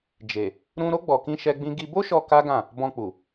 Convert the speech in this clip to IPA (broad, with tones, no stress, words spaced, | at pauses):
d͡ʒe˨ | ɾũ˧ɾo˦ ɡ͡bɔ˧kĩ˦ʃɛ˦ɡ͡bĩ˦ ɡi˧bo˦ʃɔ˧ ka˦ɡã˦˨ | bɔ̃˧k͡pu˨